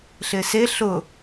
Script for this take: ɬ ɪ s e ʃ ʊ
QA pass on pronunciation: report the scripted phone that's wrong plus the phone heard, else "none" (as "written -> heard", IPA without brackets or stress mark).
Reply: ʃ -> ɬ